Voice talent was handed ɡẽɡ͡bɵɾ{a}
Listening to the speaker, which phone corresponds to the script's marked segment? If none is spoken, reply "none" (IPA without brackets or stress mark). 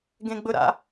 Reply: a̰